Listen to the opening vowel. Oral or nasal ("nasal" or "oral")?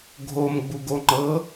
oral